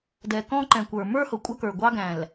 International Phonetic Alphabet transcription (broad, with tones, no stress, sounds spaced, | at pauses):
d ɛ˨ k ɔ̃˦ ǃ ɛ̃˨ kʷ ə˞˨ m ə˞˦ h ʊ˨ kʷʼ ʌ˦ k ə˞˨ ɡʷ ɑ˦ ɡ æ̃˨ l